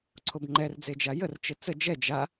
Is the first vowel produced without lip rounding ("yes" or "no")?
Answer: no